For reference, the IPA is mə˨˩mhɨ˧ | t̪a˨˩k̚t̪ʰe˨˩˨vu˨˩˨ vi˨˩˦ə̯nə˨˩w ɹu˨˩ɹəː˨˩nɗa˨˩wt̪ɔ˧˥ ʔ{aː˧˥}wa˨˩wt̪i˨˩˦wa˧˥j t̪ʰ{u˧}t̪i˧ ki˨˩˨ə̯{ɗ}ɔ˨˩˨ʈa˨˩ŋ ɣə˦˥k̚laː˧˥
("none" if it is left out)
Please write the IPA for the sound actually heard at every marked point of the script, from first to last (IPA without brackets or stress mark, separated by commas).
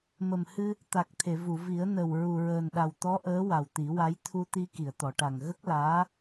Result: əː˧˥, u˧, t̪